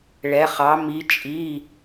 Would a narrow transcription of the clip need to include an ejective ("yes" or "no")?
yes